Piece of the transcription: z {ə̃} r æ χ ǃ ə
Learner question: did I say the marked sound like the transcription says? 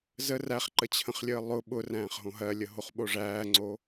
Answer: no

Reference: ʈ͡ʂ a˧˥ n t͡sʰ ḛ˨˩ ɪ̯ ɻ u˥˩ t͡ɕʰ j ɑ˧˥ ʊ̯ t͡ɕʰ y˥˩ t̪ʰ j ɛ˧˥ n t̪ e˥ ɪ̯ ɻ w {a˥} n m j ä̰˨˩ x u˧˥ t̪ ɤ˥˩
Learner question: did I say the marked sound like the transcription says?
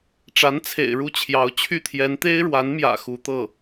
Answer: no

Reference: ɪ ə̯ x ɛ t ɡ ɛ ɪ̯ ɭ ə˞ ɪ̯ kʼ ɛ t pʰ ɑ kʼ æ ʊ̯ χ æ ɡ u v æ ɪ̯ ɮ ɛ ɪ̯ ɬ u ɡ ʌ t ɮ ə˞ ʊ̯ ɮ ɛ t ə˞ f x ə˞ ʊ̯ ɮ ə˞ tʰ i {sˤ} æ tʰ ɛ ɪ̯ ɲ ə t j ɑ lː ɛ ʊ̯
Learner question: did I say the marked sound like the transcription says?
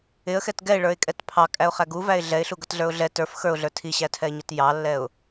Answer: no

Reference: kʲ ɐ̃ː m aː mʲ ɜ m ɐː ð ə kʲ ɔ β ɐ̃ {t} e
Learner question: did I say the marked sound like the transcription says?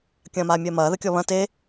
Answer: yes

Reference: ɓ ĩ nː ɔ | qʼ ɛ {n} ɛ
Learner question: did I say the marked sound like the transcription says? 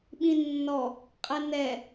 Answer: yes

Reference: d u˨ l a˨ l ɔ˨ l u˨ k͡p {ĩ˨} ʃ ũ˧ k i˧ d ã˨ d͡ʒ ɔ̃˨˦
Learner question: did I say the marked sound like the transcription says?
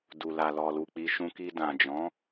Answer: no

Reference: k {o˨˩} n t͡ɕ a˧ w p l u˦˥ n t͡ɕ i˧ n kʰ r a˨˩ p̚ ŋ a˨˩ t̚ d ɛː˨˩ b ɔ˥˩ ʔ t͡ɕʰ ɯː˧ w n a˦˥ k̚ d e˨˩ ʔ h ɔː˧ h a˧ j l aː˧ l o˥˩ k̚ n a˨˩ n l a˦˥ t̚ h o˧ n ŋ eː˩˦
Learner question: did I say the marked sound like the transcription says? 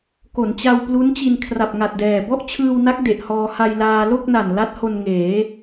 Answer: no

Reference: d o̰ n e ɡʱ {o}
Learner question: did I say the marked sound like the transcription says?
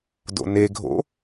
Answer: no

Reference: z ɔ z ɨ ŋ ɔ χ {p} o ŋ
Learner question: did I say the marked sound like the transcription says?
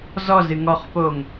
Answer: yes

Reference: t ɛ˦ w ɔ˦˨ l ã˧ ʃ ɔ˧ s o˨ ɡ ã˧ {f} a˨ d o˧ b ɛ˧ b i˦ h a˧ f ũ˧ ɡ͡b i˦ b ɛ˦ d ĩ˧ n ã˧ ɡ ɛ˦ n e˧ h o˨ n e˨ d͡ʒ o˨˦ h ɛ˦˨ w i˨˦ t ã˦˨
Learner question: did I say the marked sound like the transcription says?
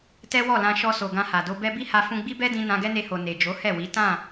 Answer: no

